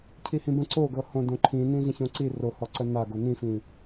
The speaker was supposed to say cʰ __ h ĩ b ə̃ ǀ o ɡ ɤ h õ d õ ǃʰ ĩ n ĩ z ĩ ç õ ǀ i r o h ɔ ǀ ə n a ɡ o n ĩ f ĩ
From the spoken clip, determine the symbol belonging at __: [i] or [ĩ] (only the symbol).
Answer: i